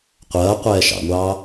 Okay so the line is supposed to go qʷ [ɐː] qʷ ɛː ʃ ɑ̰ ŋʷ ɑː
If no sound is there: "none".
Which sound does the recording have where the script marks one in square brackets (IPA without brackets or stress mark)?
ɐː